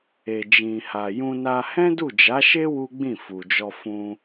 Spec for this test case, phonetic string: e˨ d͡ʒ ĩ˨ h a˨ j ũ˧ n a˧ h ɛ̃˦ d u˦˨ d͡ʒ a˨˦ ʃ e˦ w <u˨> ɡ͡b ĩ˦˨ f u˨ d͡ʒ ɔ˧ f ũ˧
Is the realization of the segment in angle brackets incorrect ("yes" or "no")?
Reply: yes